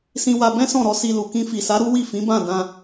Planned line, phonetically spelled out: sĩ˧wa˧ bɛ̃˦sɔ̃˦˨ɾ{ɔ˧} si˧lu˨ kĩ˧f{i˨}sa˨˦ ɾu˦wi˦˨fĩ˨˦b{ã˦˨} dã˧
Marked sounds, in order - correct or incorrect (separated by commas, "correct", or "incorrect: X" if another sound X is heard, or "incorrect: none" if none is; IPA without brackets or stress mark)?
correct, correct, correct